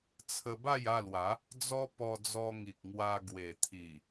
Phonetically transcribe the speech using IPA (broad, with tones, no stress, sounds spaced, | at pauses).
t͡sʰ ə˧ b a˥˧ j a˥˧ l w a˨˦ | d͡z ɔ˦ p ɔ˧ d͡z ɔ˧ ŋ i˨ k̚ ŋ w a˧ ɡ w e˨˩ t̪ʰ i˨˩